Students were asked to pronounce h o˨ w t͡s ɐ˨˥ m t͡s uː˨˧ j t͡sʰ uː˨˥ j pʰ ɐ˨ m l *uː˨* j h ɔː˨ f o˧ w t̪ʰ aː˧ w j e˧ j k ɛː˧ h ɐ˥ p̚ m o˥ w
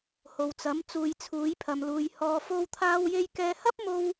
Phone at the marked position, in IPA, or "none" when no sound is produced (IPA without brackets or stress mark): uː˨